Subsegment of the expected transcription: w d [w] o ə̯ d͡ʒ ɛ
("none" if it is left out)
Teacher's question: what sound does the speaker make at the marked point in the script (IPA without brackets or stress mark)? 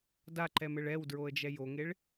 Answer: ɹ